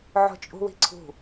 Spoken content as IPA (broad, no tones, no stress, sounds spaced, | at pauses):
ʕ o̤ t͡ʃʼ ṳ w i̤ ǀʰ ṳ